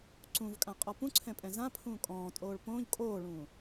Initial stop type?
click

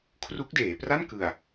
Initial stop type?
aspirated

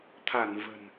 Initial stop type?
aspirated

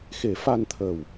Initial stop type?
aspirated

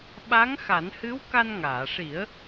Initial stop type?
implosive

